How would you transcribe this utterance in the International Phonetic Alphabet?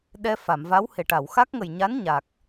ɗ ɛ˧ f a˨˩˨ m v a˧˥ w h e˨˩ ʈ a˨˩˨ w x a˦˥ k̚ ŋ ə˨˩ j ɲ a˧˥ n ɲ a˨˩ k̚

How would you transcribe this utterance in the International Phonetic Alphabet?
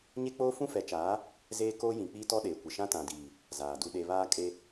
ɲ e˦ k͡p oː˦ f ũ˦ f ɛ˨˦ t͡ʃ aː˨˦ | z eː˦ k oː˦ j ĩ˨ k͡p i˦ t ɔ˦ ɗ eː˨ kʷ ɪ˨ ʃ ã˦ t ã˨ d iː˨ | z aː˨ d u˦ ɗ e˦ β aː˦ kʼ e˦

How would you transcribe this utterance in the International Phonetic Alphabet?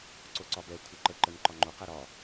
ǀ o ǀ ɒ b ɛ kʷʰ ɛ ǃ ə ǃ ə n ǃ ɒ ŋ͡ǃ o q ɛ ɾ ɒ

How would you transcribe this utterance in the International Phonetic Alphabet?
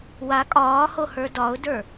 w a kʼ ɒː h o h ə˞ d ɒ ʊ̯ d ə˞

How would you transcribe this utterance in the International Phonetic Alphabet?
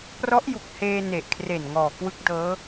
p r ɔ˦˥ ʔ j u˨˩ k̚ h eː˧ n e˨˩ ʔ kʰ r e˨˩ n ŋ ɔː˨˩ k w ɯ˦˥ k̚ d ɤː˦˥

